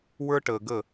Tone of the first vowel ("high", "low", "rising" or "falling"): high